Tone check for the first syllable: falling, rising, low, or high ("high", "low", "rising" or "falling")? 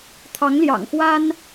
rising